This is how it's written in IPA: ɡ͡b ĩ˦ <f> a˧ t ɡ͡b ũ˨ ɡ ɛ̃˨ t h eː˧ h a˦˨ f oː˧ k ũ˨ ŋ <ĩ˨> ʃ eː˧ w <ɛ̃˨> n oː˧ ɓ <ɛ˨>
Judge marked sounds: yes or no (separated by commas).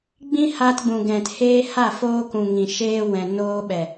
no, yes, yes, yes